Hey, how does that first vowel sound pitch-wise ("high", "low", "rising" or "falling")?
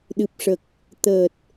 low